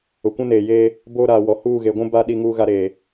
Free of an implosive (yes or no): no